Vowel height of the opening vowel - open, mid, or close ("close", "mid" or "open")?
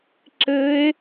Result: mid